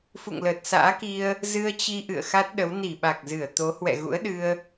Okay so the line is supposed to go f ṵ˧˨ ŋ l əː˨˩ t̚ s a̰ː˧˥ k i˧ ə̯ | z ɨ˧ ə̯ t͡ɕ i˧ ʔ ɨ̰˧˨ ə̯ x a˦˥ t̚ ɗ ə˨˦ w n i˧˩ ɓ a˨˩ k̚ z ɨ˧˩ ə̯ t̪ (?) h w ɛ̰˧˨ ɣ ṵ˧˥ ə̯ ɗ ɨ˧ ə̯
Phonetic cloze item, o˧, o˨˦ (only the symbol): o˨˦